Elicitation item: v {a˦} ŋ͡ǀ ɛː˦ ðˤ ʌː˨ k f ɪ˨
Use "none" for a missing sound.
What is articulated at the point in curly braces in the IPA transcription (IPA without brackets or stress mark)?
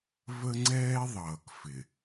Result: ə˦